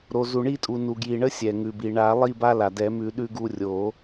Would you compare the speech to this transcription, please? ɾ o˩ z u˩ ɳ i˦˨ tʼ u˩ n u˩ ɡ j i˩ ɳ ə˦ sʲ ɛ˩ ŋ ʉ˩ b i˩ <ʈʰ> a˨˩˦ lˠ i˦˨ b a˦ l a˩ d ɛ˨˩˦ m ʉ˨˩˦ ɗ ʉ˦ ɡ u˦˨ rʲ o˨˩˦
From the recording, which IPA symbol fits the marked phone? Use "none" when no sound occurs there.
ɳ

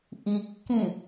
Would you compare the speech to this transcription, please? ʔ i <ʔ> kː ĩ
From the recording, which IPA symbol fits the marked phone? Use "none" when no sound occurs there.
none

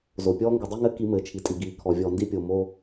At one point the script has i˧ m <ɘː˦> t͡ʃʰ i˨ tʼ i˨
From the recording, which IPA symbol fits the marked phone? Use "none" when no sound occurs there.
ɘː˨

